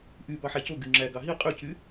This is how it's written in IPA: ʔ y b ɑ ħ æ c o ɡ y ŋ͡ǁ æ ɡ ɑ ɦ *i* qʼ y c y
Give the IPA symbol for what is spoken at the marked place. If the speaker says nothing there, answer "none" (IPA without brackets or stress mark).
i